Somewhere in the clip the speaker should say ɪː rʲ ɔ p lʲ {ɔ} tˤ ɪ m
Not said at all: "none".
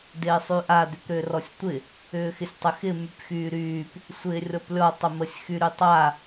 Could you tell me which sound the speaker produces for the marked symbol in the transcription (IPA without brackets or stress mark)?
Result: ɔ